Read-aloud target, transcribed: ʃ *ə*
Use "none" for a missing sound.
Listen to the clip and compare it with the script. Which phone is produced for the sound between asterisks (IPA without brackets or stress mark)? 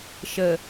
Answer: ə